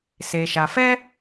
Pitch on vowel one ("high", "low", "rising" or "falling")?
low